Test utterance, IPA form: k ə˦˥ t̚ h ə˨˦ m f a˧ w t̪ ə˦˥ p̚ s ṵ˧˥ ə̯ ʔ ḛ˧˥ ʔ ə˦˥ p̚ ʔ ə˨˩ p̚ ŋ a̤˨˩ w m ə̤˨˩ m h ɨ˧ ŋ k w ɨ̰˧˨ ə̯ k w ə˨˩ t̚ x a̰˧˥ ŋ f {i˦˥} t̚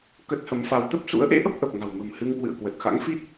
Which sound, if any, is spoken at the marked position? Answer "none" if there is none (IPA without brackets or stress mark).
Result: i˦˥